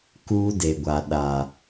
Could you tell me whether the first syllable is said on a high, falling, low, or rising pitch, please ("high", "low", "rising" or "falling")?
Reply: high